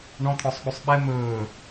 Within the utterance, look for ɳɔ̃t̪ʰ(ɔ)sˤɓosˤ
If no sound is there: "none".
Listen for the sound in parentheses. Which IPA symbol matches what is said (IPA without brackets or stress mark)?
ɔ